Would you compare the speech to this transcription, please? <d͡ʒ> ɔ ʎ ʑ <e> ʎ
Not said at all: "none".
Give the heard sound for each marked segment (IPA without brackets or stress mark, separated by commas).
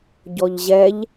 ɟ, ɛ